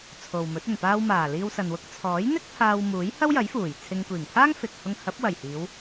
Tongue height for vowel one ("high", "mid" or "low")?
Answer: mid